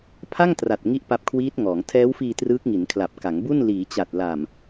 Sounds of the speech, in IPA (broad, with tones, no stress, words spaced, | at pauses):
pʰa˥˩ŋtra˨˩t̚ ŋi˥˩ʔpa˦˥p̚kʰwiː˦˥t̚ŋɔː˩˦ŋ tʰɛː˦˥wfiː˧ trɯː˦˥k̚ŋi˩˦nkʰla˨˩p̚ ka˩˦ŋbu˥˩n liː˩˦t͡ɕa˨˩t̚la˨˩m